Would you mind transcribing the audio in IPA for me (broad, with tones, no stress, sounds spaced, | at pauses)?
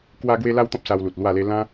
k w a˦ ɡ w e˦ l a˦ w t̪ ɔ̃˦ p̚ s a˧ w l u˨ t̚ l w a˥˧ l e˦ l ã˦